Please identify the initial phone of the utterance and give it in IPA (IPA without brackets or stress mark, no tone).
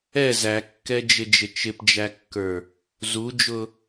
ɛ